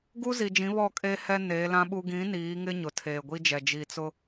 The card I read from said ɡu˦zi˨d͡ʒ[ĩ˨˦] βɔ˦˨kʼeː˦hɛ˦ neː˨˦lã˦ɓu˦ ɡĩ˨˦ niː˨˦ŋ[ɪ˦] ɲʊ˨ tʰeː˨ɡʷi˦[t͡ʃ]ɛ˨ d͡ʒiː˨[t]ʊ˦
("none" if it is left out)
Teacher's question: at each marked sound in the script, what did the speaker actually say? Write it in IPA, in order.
ĩ˨˦, ɪ˦, d͡ʒ, t͡s

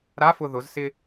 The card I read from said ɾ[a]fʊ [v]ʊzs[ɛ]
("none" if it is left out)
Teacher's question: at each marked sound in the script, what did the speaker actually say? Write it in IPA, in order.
a, ð, ɪ

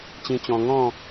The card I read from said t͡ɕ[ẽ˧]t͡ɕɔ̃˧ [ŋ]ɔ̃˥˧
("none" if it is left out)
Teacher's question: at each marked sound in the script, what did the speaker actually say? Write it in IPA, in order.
ĩ˧, ŋ

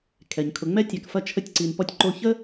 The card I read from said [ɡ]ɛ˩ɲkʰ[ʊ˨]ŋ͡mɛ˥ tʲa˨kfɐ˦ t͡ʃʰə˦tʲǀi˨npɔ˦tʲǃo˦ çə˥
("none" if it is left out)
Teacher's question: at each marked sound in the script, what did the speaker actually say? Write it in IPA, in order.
kʰ, ʊ˨

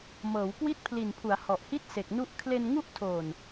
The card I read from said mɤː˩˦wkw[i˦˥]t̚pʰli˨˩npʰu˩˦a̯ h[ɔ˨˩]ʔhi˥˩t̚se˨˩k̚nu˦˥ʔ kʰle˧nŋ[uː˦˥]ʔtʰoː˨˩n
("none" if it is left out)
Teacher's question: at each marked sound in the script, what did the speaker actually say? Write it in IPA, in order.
i˦˥, ɔ˨˩, u˦˥

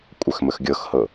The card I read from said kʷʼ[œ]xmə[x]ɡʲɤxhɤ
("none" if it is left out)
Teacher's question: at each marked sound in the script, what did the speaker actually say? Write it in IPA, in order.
œ, x

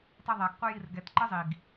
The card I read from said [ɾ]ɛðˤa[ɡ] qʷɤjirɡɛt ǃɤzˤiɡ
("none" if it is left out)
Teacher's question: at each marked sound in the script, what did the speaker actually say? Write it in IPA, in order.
tˤ, ɡ

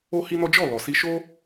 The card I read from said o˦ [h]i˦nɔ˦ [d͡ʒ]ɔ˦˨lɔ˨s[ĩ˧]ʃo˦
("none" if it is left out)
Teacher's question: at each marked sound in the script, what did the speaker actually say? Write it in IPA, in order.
h, d͡ʒ, i˧

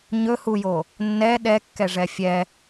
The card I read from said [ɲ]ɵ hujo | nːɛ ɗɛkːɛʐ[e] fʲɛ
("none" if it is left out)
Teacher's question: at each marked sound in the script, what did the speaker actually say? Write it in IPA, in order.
ɲ, ɛ

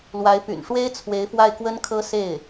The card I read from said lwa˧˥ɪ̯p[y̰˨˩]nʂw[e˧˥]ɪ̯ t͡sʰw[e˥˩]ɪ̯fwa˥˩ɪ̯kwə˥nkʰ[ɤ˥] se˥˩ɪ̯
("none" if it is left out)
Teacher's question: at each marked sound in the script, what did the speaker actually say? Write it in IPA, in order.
y̰˨˩, e˥, e˧˥, ɤ˥

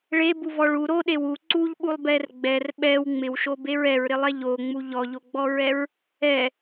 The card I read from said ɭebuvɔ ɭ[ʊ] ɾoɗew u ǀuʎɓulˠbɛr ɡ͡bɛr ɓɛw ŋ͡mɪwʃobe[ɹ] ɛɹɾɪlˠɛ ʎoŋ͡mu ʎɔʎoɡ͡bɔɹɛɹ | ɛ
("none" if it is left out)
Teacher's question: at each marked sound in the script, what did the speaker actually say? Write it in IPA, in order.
u, ɹ

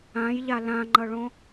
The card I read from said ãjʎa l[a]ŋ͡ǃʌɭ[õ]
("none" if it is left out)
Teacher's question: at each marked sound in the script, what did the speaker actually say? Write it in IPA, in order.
ã, õ

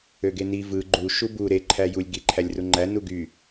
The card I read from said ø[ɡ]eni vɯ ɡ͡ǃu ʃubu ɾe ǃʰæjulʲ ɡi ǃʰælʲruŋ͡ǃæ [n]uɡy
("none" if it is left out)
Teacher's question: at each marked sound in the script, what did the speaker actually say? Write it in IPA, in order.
ɡ, n

